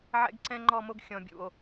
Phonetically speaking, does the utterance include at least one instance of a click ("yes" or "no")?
yes